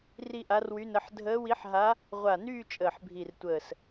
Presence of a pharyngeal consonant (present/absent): present